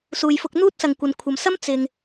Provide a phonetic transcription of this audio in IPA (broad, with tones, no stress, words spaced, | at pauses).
suː˨jfʊ˧k̚n̪uː˥t̚ sɐ˨ŋkʷɐ˨nkʷʰɐ˨msɐ˥m t͡sɪ˨ŋ